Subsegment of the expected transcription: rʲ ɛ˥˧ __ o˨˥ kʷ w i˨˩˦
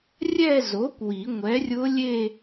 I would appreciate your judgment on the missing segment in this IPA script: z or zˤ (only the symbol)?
z